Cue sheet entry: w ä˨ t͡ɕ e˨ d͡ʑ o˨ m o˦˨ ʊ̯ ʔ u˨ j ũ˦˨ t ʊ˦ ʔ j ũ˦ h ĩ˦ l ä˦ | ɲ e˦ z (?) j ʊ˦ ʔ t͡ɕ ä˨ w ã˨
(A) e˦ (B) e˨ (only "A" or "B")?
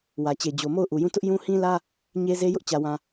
A